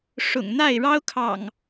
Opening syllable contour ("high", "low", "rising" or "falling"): low